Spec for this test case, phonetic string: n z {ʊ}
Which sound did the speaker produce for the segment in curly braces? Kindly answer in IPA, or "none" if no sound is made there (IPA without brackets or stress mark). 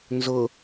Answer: ʊ